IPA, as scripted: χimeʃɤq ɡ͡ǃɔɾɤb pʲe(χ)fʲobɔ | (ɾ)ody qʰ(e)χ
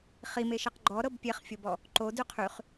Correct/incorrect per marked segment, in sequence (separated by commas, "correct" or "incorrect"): correct, incorrect, incorrect